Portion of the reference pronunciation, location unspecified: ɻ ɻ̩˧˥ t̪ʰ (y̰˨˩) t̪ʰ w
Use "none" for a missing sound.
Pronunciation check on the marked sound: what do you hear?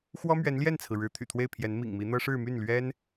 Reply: y̰˨˩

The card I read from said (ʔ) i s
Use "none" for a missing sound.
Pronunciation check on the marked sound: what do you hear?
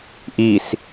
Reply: ʔ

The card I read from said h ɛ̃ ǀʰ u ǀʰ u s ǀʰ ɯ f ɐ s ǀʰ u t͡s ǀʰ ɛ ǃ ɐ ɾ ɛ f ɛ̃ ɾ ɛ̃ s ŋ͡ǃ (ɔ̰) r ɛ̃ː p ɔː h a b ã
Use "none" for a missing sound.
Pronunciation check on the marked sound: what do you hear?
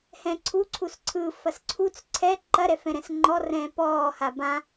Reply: ɔ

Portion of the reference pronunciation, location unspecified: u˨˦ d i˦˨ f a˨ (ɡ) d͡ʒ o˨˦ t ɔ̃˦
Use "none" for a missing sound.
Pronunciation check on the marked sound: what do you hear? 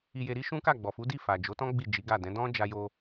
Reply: none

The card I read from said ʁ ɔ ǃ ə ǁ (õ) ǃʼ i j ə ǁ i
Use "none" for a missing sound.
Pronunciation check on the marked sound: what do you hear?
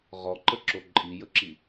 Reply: o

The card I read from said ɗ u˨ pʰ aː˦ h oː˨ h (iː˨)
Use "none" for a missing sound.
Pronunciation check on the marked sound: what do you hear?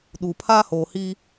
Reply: iː˦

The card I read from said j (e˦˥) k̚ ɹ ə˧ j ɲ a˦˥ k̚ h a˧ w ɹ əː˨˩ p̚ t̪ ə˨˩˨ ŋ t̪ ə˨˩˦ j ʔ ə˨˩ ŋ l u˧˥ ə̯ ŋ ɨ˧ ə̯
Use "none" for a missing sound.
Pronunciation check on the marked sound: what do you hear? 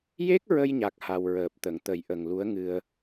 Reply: e˦˥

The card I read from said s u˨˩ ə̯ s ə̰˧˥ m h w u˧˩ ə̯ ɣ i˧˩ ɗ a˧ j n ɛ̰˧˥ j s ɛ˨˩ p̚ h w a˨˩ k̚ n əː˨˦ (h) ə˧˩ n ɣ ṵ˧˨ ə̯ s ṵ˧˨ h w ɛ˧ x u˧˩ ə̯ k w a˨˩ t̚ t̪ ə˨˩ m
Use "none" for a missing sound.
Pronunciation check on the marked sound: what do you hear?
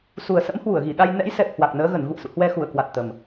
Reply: ɣ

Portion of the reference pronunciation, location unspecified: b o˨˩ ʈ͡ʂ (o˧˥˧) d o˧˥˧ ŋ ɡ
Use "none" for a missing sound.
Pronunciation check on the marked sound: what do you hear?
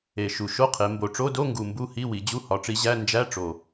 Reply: o˧˥˧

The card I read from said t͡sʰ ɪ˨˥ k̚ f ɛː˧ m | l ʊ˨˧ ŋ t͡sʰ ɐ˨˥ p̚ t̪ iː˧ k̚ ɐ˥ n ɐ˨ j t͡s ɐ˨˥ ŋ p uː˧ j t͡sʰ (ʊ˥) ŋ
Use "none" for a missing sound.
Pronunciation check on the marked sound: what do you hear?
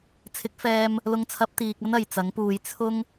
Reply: ʊ˥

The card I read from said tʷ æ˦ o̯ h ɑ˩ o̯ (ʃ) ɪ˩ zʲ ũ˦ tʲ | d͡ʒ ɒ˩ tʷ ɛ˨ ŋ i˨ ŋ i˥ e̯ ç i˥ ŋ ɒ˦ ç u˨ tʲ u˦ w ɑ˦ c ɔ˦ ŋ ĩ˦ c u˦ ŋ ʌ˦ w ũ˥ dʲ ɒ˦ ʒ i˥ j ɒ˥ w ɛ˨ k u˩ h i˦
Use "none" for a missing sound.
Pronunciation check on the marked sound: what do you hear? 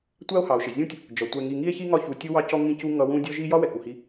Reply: ʃ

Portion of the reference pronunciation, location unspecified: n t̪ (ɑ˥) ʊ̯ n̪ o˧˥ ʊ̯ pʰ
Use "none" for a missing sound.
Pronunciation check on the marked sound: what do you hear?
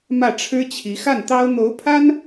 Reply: ɑ˥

